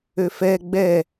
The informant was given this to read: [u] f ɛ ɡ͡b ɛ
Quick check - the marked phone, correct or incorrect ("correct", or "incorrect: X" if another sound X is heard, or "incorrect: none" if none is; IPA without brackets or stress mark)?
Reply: incorrect: ø